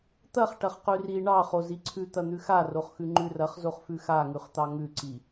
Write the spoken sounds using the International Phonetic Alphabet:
t̪ ɐ χ ʈ ɐ χ q ʉ r i ɳ ɑ χ o z i ǀʰ ʉ t̪ ɐ n̪ ʉ x a r o χ x ʉ ŋ͡ǃ ʉ r ɐ χ z o χ f ʉ x a ŋ ʉ χ t̪ ɑ ŋ ʉ ǀ i

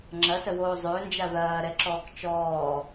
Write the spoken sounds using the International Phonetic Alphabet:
ŋ͡ǁ ɐ s ə w oː zˤ øː n d͡ʒ a ð ɐː ɾ ɛ ǁ ɔː k t͡ʃ ɔː

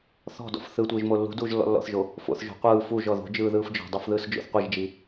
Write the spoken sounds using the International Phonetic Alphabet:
θ ɔ̤ d ɔ̰ f θ ɯ tʷ ɯː ʒ m o lː ṳ d uː ʒ lː ɔ̰ lː ɔ̰ θ ʒ o | f o̰ θ ʒ o̤ qʷ ɯː f u ʒ ɔ ð o̤ d͡ʒ ɯː ð ɯː f d͡ʒ ɔ̤ dˤ o f ð ɯː s d͡ʒ o̰ θ qʷ i ʒ d͡ʒ i

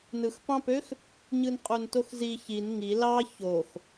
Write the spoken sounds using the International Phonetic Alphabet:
n ɯ x p ɑ̃ p ø x | ɲ ɯ n qʼ u n t o x z i ç i n ŋ i l ɑ ç o x

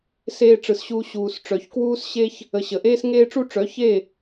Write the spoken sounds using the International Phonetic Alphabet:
s eː˧ ʈ͡ʂ ɯ˨ s ɕ uː˧ ɕ uː˨ s ʈ͡ʂ œ˨ ç k w uː˧ s ɕ e˧ ç | ə˨ ɕ ə˨ ʔ eː˦ s ŋ eː˦ ʈ͡ʂ u˦ ʈ͡ʂ œ˨˦ ç e˦˨

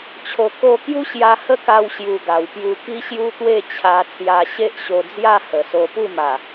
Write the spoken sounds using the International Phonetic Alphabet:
t͡ɕʰ o˨˩ k o˧ k j u˦ ɕ j a˧ h ə˥˧ k a˧ w ɕ j u˨˩ ɡ a˨˩ w p j u˧ k i˦ ɕ j u˦ t̪ w e˥˧ t͡ɕʰ a˧ t͡s j a˧ ɕ e˦ ʔ ɕ o˧ d͡z j a˥˧ h ə˨˩ s o˧ p u˥˧ m a˨˩

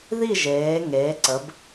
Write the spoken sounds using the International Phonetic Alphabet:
ð i˥˧ ʒ eː˩˧ ŋ eː˩˧ ǀ ə˩˧ b

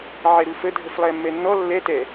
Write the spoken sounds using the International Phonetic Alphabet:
ʕ ɛ ɾ u f ə dʱ ə f lˠ ɛ mː ɛ nː ɔ lː ɛ t ɛ

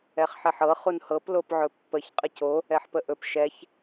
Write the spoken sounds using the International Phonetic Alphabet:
ɛ χ ħ ɛ ħ ɤ χ u n h ɤ p l o p ʕ ɵ pː ə ç qʼ ə c o | ɛ ħ p ə ʔ ɵ p ʃ ɛ ç

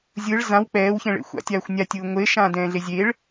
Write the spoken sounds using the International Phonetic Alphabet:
zʲ ɯ ɭ z ã w k͡p ɛː w ç ɛ̃ ɭ ḛ xʷ a̰ tʲ aː xʷ nʲ a tʲ ɯː ŋʷ e ʃ ãː d ɛ̃ː ɮ e zʲ e ɭ

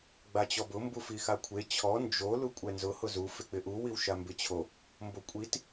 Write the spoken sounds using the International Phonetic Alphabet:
ɡ͡b a t͡ɕ ɔ b ʊ m b u f i x a kʷʰ e t͡ɕʰ ɔ n d͡ʒ o l u kʷʼ ɛ n z ʊ h ʊ z u f ɪ k͡p ɪ ʔ u w i w ʃ a m b ɪ t͡ɕʰ o | m b o kʷʼ i t

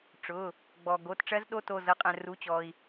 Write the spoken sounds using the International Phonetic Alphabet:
ʈ͡ʂ ʊ˩˧˩ | ɡ͡b ɔ˩ ɡ o˩˧˩ t ʈ͡ʂ ɜ˦˥ z ɗ o˦˥ t o˩˧˩ z ɤ˩˥ qʼ ɛ̃˩ r u˩˧˩ t͡ɕ ɔ˩ i̯

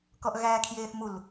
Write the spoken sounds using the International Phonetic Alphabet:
k ɔ ʔ ɣ æː kʰ j eː θ m u l

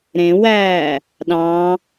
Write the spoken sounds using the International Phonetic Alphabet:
ɾ ẽ w æː | ɗ ɑ̃

